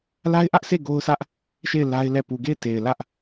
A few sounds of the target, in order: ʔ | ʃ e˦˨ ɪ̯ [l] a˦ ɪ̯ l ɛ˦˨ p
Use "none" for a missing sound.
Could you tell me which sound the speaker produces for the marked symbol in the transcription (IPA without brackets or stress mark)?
l